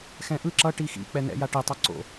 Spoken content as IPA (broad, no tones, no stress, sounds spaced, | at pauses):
x ɛ̃ ʔ ɯ ǁ ʌ ʈ i x ḭ k͡p ɛ n̪ ɛ̰ j a ʈ i tˤ ʌ ǀ o̰